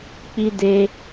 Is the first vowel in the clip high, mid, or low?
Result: high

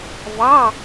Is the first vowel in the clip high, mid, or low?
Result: low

